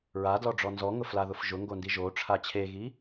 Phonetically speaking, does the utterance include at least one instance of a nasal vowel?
no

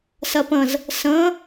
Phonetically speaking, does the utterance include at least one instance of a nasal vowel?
yes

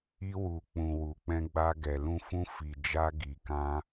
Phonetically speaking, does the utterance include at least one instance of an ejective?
no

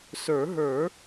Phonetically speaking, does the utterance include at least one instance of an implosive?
no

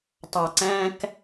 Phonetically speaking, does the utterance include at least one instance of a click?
yes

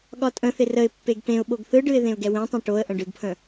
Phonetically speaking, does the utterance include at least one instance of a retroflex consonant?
yes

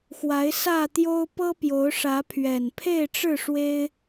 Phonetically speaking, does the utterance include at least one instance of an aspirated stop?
yes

